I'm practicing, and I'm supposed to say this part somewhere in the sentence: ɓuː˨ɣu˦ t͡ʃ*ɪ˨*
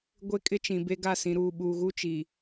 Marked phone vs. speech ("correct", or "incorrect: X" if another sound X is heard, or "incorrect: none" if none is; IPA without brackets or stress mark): incorrect: i˨